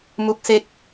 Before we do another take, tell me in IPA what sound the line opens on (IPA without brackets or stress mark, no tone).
m